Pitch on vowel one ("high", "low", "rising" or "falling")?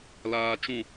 low